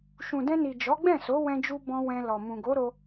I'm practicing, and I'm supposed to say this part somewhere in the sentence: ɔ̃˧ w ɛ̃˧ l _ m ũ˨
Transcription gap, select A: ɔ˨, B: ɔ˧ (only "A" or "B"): A